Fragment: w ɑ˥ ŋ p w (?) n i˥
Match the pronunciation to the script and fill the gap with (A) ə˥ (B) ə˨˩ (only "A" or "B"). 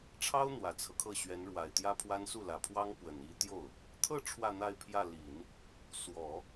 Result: B